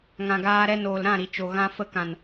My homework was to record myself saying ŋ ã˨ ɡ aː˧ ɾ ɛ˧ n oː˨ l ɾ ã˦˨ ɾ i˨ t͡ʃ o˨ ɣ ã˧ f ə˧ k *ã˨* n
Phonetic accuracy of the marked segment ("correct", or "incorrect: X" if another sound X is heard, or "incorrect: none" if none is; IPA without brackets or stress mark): correct